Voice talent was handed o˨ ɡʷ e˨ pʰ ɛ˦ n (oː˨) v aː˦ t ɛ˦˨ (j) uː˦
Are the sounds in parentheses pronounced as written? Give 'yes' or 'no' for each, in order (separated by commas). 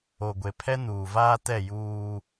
no, yes